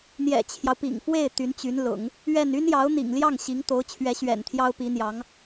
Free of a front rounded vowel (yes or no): no